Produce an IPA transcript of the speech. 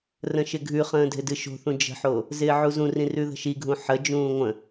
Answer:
r ə̃ ʃ ɪ ɡʱ ʉ χ ə̃ː dʱ ɪ d ɨ ʃ o̤ θ ũ d͡ʒ ə̤ ħ o | z ɪː ʕ u z ũ r ĩ r ʉ ð ə̤ ʃ i ɡʱ ũ ħ ə d͡ʒ ũː ŋʷ ə̃

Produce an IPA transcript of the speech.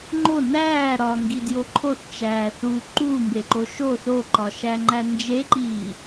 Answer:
ŋ͡ǃ o n æː ɾ ɒ ŋ ɡ i d j o ǃʰ o θ t͡ʃ æː θ u ǃ uː m b e ǃ o ʃ o θ o ǃ ɒ ʃ æ ŋ͡ǃ æ n d͡ʒ e ǃ iː

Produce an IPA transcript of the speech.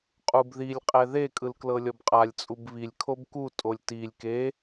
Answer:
qʼ u b ð i lʲ qʼ ɛ ð e kʼ ɯ l k l ɤ lʲ ɔ b qʼ a lʲ t͡sʼ u b β i lʲ kʰ o b k u tʼ o lʲ t i lʲ k e

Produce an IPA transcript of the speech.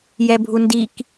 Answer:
j ɛ bʱ u n d i k

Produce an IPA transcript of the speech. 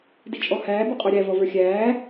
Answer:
d i t͡ʃʼ ɔ h æː b u qʼ ə˞ ɾʲ æ v ɔ v ə˞ xʲ æː

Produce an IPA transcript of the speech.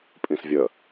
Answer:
pʼ ĩ s vʲ ə

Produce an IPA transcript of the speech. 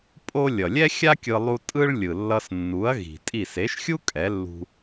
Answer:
pʼ o˥ lʲ ʌ˩ lʲ ɛ˥ xʲ a˥ kʲ ɯ˧ lˠ u˧ tʼ ɯ˥ ɭ lʲ ɯ˩ lː ʌ˧ s nː u˩˥ ɐ̯ ɣ i̤˩ tʼ i˥˩ s e˩˥ ʃ xʲ u˥ kʼ ɛ˩˥ lː ṳ˧

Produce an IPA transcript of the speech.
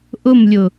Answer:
ʔ ʊ m lʲ ʊ

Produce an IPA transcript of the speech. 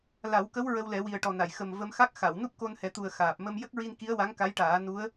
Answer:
l a˨˩˦ w k ə˧˥ w ɹ ə˧ w l ɛ˨˩˦ w i˨˩ ə̯ ʈ ɔ˨˩ n a˨˩˨ j x ə˨˩ m v ə˧ m x a˦˥ k̚ x a˨˩˨ w n u˦˥ p̚ k o˧ n h ɛ˨˩˦ t̪ u˨˩ ə̯ x aː˨˩ p̚ m ə˧ m j ə˦˥ k̚ ɹ i˧ n k i˧˥ ə̯ w a˧˥ ŋ k a˧˥ j ʈ aː˨˩˦ n u˧˥ ə̯

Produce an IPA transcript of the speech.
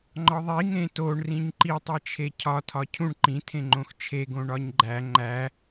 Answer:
ŋ͡ǃ ɒ ðˤ i ŋ ẽ t o ɳ r ĩ ɲ ǃ i tˤ e t͡ʃʰ e cʰ ɒ tʰ ɒ cʰ ũ ɳ ǃ ĩ tʰ ẽ ŋ͡ǃ õ x t͡ʃʰ e ɡ õ ɳ ɒ ɲ ɡ͡ǃ æ ŋ͡ǃ æ

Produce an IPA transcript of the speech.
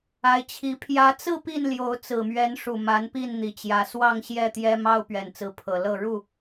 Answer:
a˨˦ ɪ̯ t͡ɕʰ i˨˦ pʰ j ä˨˦ t͡s ɹ̩˥˨ p i˥˨ n l j o˨˦ ʊ̯ t͡s ɹ̩˨˩ m ɥ ɛ˨˦ n ʂ u˨˩ m a˨˦ n p i˥˨ n n̪ i˨˩ t͡ɕ j ä˨˦ s w ɑ˥˨ ŋ ɕ j ɛ˥˨ t̪ j ɛ˦ m ɑ˦ ʊ̯ p ɥ ɛ˨˩ n t͡s ɹ̩˨˦ pʰ ɤ˨˩ l ɤ˥˨ ɻ u˥˨

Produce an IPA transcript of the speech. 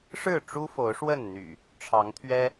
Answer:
ʂ ɻ̩˥˨ ʈ͡ʂ u˦ f o˨˦ ʊ̯ ʂ w ə˥˨ n n̪ y̰˨˩ | ʈ͡ʂʰ ɑ˨˦ ŋ t̪ʰ ɥ ɛ˦

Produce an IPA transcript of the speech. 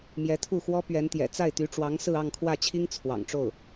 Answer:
m j ɛ˧˥ t̪ʰ u˥˩ x w ɔ˥ p ɥ ɛ˧˥ n t̪ j ɛ̰˨˩ t͡s a˥˩ ɪ̯ t̪ y˧˥ ʈ͡ʂ w ɑ˧˥ ŋ s ɹ̩˥˧ ɑ˥˧ ŋ kʰ w ä˥˩ t͡ɕʰ i˥ ŋ t͡sʰ w ɑ̰˨˩ ŋ ʈ͡ʂ o˥˩ ʊ̯

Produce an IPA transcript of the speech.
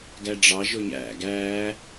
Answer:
ɡ æ ɖ͡ʐ ɑ ʒ o ɲ æ̰ ɡ æː

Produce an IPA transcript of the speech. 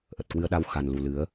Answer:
ʔ ə˨˩ t̚ k w ɨ˧ ə̯ ɗ a˧ w x a˨˩ n l u˨˩ l ɨ˨˦ ə̯

